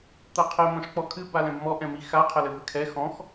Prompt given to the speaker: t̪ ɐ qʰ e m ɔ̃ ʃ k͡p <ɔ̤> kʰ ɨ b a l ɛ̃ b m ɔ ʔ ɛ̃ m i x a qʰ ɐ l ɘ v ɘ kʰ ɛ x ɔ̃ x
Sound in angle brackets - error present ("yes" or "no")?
yes